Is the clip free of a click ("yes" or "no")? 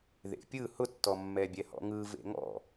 yes